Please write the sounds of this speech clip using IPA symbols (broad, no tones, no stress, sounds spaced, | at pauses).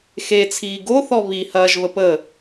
x e t͡sʰ iː ɡ o θ ɔ β i h ɐː ʒ β ə p ə